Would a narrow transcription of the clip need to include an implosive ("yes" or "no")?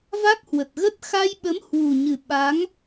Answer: yes